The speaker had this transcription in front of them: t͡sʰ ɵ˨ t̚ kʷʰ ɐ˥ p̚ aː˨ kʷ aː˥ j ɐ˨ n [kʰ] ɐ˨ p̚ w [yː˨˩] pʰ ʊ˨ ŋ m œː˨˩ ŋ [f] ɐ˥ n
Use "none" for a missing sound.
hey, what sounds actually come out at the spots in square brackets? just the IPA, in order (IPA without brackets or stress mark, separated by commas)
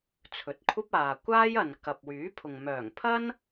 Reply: k, yː˨˥, pʰ